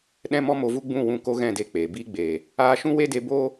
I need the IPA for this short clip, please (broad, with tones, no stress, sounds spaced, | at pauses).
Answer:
ɗ ɛ̃˦ m ɔ˦ m o˧ v u˦ ɡ͡b ũ˦˨ w ũ˧ k o˦ ɣ ɛ̃˦˨ d e˧ k͡p e˨ b i˦ ɡ͡b e˨ | aː˧ ʃ ũ˦ w e˦ d e˧ b o˦